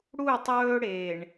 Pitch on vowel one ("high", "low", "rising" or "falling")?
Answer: falling